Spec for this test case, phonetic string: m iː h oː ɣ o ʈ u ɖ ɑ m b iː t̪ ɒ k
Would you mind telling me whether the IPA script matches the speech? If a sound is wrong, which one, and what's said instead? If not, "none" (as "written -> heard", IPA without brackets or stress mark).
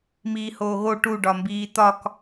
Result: ɑ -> ɒ